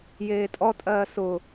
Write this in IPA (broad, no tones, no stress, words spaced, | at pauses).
jeːtʼɔtʼɜː sʊ